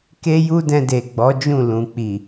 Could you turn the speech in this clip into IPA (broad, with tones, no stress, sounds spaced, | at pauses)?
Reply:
k e˦ j u˦ d ɛ̃˧ d e˨ ɡ͡b ɔ˨˦ d͡ʒ ũ˦˨ l ũ˨ k͡p i˨